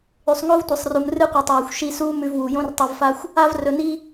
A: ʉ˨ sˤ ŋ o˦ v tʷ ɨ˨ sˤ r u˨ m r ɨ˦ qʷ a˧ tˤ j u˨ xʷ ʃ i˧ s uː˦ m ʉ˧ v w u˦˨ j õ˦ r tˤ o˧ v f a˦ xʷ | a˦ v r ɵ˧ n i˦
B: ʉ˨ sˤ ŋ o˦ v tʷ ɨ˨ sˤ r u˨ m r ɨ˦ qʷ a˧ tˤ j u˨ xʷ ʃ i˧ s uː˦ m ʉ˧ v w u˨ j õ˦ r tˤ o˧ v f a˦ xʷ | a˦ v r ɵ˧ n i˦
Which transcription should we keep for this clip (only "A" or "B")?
B